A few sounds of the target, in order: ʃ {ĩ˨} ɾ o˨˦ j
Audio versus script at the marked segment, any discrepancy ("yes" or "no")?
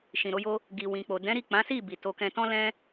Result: no